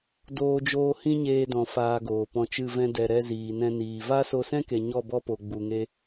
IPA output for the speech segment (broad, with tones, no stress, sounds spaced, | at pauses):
d oː˦ d͡ʒ oː˦ h ĩ˦ ɲ eː˧ d ɔ̃˨ f aː˧ ɡ oː˨ p ɔ̃˧ t͡ʃ ɨ˦˨ v ɛ̃˧ d ɛ˨ ɾ ɛ˧ z iː˨ n ɛ̃˧ n iː˨ v a˦ s o˧ s ɛ̃˦ k e˨ ɲ ɔ˦˨ b ɔ˦ p o˨ ɡ͡b u˨ ŋ e˦